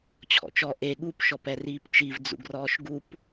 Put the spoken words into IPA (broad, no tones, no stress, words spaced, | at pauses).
t͡ɕʰɔ̰t͡ʃɔ ʔe ɠup ʃɔpɛriːpt͡ʃiv d͡zṵɡrɔːʃɡup